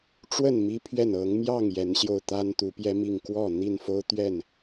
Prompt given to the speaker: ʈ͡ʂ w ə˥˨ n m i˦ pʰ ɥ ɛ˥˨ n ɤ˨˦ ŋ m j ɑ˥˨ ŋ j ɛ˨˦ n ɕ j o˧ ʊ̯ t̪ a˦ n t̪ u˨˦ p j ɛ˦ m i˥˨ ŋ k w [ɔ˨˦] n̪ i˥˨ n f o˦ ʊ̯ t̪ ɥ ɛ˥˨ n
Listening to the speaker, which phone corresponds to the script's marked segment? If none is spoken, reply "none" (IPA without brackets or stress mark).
ɔ˥˨